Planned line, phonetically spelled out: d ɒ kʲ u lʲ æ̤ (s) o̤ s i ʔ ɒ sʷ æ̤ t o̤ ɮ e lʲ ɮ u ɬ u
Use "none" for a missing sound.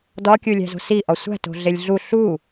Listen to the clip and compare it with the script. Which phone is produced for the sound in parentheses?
z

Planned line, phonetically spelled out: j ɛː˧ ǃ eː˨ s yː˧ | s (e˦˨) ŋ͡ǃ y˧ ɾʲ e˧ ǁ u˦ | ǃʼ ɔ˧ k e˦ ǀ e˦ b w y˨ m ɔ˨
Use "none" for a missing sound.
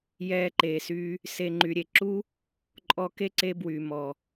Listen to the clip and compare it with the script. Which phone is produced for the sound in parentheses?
e˧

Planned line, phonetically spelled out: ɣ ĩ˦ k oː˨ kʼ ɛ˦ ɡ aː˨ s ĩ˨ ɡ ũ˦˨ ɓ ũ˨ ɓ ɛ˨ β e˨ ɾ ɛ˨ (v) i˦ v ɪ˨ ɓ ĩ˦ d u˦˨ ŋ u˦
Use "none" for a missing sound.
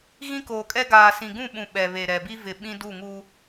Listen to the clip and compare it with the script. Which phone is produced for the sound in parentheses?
b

